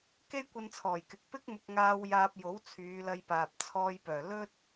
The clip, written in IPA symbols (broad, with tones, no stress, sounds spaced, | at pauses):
k e˥ j kʷ ɐ˧ n t͡sʰ ɔː˨˩ j k ɪ˨ k̚ p ɪ˥ k̚ m ʊ˧ k̚ ŋ aː˧ w j aː˧ p̚ j o˨˥ w t͡sʰ yː˨˧ l ɐ˧ j p aː˨ p̚ t͡sʰ ɔː˧ j p œː˨˩ l ɵ˥ t̚